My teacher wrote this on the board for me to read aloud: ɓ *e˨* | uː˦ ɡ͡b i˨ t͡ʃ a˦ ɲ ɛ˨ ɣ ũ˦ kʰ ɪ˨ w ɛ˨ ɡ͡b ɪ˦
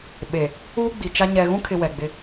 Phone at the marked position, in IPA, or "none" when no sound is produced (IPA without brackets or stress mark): e˨